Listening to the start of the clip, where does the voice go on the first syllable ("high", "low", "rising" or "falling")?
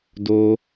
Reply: high